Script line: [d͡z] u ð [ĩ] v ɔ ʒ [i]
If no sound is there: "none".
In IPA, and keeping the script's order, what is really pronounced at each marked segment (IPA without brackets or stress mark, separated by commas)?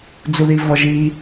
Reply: d͡z, i, i